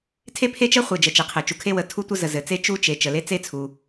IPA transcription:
tʰ e˥ pʰ e˥ t͡ʃ ə˥ χʷ e˩ d͡ʒ ə˩ t͡ʃ e˩ qʰ ɘ˩ t͡ʃ u˩ kʰ e˥ w ə˩ tʰ u˥ tʷ ə˥ z ə˩ z ɘ˩ t͡s e˥ t͡ʃ u˥ t͡ʃ e˩ t͡ʃ ə˩ l e˥ t͡s e˥ t͡sʰ u˩

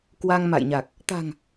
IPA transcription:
k w a˧ ŋ m a̰˧˨ j ɲ a˨˩ k̚ | t̪ a̤˨˩ ŋ

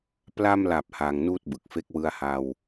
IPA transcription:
p l a˧ m l a˨˩ p̚ h aː˧ ŋ n uː˥˩ t̚ b ɯ˨˩ k̚ f e˦˥ k̚ w ɯ˧ a̯ h a˧ w

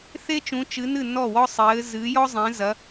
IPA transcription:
θ e˥ t͡ʃ ũ˨˦ t͡ʃ ɨ˨˦ n ɨ˥˩ n ɔ˥˩ w ɔ˥ sˤ ɘː˨˦ z ɨ˨˦ j ɔ˥ zˤ ẽ˨˦ z ɐ˨˦

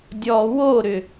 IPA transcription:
dʲ ɔ w o ɾ ʏ

